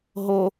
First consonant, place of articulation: glottal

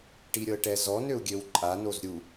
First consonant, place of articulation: retroflex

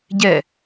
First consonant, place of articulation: palatal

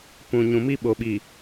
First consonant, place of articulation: labial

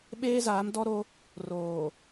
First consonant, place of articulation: labial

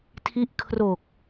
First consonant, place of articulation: alveolar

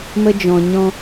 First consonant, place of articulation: labial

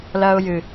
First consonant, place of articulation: alveolar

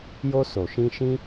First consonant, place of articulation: palatal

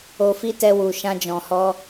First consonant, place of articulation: labial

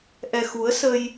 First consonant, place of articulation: glottal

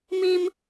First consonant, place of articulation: labial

